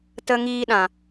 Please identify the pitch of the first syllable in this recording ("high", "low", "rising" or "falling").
high